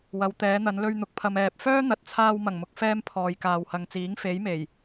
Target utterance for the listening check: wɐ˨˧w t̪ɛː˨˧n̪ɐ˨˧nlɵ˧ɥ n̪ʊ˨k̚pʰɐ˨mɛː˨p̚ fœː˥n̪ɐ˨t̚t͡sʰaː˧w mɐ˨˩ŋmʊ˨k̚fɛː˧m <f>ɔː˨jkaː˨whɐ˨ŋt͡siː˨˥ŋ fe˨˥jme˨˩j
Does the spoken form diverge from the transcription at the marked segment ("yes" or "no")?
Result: yes